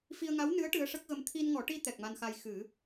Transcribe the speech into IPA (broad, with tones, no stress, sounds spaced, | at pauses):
f i˧ ə̯ ŋ a˧˥ w n ɨ˧˥ ə̯ ʈ ɨ˧˥ ə̯ ʂ ə˦˥ k̚ ɣ ə˧ m t̪ʰ i˧ n ŋ ɔ˨˩˦ ʈ i˧ t̪ ɛ˨˩ k̚ m a˧ n x a˧ j x ɨ˨˩˦